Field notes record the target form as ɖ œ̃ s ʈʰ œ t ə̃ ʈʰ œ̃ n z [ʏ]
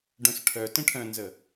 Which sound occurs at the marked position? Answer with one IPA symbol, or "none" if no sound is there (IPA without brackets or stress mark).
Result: ə